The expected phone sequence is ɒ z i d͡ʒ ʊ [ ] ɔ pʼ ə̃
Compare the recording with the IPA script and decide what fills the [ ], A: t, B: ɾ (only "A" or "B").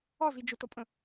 A